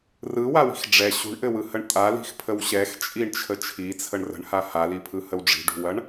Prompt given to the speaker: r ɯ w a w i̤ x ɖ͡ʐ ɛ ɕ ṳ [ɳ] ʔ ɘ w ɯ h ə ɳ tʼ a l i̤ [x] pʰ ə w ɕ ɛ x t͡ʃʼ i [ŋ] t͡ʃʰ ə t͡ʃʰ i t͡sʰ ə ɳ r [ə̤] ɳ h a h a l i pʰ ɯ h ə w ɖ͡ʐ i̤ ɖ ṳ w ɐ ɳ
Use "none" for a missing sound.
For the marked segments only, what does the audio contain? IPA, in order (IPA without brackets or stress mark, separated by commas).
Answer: ɳ, x, ɳ, ə̤